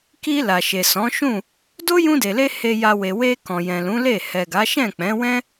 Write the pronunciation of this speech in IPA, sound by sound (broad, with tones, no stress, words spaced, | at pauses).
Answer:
ki˧ la˨ʃe˨sɔ̃˨˦ʃũ˦˨ | do˦jũ˧de˨le˧ he˧ja˧we˨ we˧ kɔ̃˨jɛ̃˨lũ˨˦ le˦˨ hɛ˨ɡa˨˦ʃɛ̃˦˨ k͡pɛ̃˨˦wɛ̃˦